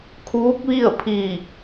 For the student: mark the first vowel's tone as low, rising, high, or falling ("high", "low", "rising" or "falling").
rising